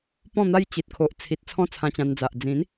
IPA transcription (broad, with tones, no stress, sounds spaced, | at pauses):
p ɔ̃˥˧ n̪ a˦ j t͡ɕ i˨ t̚ kʰ o˨ ʔ t͡sʰ i˨ t̚ t͡sʰ ɔ̃˥˧ t͡sʰ ã˧ t͡ɕ ã˧ n d͡z a˨ ʔ d͡z ĩ˨˦ n